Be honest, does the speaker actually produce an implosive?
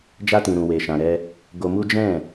no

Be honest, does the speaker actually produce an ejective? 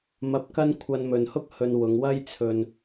no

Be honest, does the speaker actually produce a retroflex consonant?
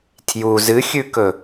no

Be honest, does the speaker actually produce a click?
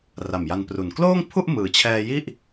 no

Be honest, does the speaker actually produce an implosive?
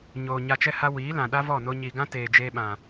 yes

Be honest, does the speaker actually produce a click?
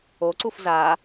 yes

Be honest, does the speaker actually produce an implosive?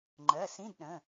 yes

